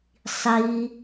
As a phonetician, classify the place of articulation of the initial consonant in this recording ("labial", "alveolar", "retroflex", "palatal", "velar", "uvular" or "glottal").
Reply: alveolar